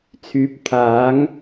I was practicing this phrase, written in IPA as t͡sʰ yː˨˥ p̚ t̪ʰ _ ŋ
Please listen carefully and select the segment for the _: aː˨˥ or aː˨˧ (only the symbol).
aː˨˥